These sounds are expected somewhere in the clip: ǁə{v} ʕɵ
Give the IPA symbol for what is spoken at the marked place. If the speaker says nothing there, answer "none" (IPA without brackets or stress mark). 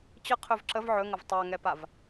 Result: v